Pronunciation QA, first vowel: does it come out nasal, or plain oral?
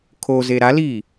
oral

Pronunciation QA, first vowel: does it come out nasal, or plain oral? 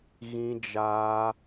nasal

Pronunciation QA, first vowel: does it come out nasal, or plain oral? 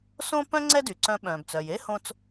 nasal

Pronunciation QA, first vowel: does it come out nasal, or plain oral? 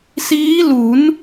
oral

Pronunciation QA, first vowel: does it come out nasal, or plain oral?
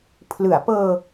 oral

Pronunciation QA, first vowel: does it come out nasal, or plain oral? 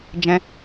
nasal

